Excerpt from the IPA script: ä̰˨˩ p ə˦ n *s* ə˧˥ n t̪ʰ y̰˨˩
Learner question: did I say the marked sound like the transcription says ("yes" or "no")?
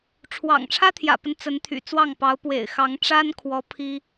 no